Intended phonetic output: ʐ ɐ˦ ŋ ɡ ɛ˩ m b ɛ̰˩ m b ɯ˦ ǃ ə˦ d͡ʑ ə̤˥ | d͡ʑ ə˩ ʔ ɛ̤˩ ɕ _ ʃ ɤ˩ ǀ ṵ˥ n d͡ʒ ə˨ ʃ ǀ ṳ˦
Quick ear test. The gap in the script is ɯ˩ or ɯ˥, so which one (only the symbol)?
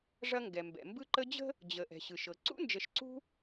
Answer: ɯ˩